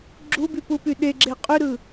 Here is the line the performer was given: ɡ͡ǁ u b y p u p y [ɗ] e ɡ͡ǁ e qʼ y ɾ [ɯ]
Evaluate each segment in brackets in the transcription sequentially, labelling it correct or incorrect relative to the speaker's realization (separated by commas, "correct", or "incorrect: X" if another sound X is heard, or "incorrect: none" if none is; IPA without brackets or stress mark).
correct, correct